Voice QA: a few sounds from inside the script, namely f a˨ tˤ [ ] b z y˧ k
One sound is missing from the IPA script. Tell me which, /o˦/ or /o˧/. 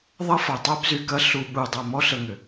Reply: o˦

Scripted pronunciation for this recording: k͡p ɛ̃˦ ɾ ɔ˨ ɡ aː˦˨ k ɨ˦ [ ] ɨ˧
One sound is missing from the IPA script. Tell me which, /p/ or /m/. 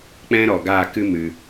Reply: m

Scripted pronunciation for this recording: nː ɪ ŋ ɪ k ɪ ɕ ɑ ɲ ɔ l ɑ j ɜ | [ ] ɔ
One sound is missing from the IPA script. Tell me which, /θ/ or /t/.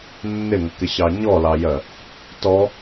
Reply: t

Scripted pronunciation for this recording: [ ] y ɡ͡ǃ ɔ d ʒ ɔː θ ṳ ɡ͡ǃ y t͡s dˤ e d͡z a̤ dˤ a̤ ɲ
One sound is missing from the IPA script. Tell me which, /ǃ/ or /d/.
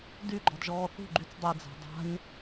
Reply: d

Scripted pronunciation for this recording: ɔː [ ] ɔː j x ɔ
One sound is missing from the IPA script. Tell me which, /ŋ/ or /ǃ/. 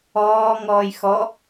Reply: ŋ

